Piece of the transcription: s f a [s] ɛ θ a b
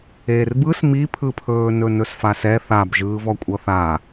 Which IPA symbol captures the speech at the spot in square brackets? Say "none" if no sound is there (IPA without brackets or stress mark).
s